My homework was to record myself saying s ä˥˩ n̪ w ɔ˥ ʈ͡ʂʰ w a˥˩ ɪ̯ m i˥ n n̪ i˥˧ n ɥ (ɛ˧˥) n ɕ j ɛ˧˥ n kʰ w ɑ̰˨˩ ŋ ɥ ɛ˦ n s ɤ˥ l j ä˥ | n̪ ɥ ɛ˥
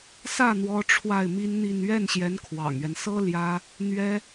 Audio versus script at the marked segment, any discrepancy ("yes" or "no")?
yes